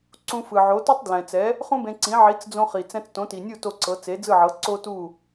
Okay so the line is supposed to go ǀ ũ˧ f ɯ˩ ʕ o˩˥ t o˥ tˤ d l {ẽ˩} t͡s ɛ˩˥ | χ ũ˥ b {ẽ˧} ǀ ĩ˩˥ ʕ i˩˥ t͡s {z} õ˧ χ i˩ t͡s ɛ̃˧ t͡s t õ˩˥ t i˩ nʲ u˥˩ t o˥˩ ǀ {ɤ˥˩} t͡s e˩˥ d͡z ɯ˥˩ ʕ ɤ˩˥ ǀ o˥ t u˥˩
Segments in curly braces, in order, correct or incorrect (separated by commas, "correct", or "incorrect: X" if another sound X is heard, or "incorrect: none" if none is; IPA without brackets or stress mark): incorrect: ɛ̃˩, correct, incorrect: d͡z, incorrect: ɤ˩˥